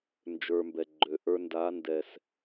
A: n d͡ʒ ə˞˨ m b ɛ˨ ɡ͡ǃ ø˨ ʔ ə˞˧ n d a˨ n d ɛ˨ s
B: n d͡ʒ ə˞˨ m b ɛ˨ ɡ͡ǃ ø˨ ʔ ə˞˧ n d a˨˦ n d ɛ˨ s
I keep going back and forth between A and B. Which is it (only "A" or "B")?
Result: B